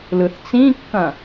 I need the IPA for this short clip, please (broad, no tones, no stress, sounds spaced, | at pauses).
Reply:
l ɯ θ t͡s ĩ kː ɐ̃